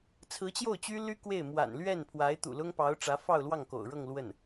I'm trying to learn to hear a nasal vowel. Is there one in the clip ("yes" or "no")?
no